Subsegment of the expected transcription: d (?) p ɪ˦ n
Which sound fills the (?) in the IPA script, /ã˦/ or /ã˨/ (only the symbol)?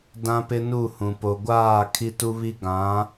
ã˦